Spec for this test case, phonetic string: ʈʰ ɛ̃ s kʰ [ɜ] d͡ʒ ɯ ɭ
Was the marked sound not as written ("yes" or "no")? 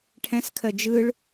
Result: no